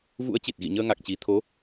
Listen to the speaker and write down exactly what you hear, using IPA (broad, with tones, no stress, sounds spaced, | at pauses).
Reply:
v ṵ˧˥ ə̯ t͡ɕ i˨˩ t̚ ɣ ḭ˧˨ ɲ əː˧ ŋ a˨˩ k̚ t͡ɕ i˨˩ t̪ʰ o˨˦